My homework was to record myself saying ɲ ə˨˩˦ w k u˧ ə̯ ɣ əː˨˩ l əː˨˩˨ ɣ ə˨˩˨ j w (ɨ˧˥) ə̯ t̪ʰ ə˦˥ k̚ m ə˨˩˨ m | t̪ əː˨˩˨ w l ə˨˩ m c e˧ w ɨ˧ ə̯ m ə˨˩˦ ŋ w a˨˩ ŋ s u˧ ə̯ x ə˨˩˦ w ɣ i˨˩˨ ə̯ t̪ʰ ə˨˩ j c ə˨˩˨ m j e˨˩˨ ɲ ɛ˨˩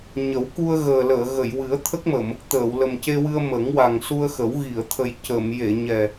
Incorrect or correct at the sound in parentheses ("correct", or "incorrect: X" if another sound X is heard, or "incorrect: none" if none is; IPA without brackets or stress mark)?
incorrect: ɨ˨˩˦